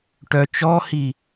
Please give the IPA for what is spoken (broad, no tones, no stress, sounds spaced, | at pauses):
ʈ œ t͡ʃ ɔ h i